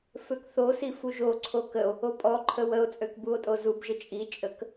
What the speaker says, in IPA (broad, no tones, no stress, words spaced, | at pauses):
føkθosi fuʒoǀʰo kəo̯ | opʼɔǃʰə wəo̯t͡sʼøk buo̯tʼozubʒə t͡ʃʼit͡ʃʼək